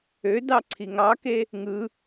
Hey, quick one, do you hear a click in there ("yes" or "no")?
yes